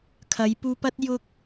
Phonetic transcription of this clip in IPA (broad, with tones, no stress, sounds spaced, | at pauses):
kʰ ɐ˨˧ j p uː˧ p ɐ˥ t̚ j ʊ˥ k̚